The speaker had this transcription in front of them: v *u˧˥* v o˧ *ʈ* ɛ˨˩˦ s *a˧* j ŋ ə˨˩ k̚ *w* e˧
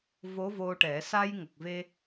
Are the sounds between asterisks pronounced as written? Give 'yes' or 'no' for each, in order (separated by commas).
no, yes, yes, no